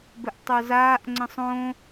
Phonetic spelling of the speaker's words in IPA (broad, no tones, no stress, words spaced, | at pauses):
bɘʔtˤozaːʔ ŋ͡ǀə̃sˤõ